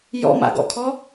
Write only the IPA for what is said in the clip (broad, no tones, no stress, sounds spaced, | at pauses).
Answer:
j ɔ̰ m a̰ ɡ ɔ̰ kʰ ɔ